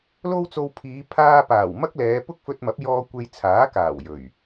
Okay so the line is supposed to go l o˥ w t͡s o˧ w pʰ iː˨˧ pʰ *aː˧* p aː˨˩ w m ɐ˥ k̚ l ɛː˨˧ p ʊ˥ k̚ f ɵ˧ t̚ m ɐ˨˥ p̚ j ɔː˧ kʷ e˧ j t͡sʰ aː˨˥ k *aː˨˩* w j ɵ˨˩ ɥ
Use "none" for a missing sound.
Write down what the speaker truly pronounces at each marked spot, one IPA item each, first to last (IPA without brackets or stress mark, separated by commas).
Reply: aː˧, aː˨˩